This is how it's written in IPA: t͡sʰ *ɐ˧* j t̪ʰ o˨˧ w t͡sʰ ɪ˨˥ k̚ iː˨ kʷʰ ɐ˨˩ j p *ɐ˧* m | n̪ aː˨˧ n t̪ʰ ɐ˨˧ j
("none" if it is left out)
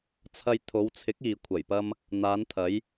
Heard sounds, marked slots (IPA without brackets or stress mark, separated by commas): ɐ˧, ɐ˧